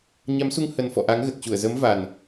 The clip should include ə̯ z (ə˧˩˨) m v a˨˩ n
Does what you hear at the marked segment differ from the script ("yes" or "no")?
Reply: yes